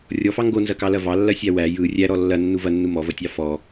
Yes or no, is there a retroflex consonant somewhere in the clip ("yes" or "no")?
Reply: no